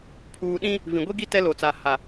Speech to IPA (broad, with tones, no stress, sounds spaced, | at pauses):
pʰ uː˨ ɗ ĩ˦ | v ĩ˨ ɡʷ i˦ ɡ i˦ t ɛ˦ l o˨ t͡s a˨ h a˨